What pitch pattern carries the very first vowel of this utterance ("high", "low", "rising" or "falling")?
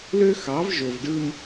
high